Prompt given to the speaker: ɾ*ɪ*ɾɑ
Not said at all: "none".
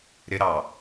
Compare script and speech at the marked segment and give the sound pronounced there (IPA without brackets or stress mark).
ɪ